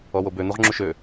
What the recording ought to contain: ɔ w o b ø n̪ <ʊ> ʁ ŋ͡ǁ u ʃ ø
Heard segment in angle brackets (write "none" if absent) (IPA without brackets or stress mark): u